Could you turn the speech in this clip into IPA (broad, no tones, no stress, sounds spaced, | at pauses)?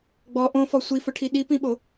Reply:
ɡ͡b ɔ ʔ õ f ɔ sʷ i f ʊ ʈʰ i ɗ i p ĩ ɓ o